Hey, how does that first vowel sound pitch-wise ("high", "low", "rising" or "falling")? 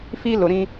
high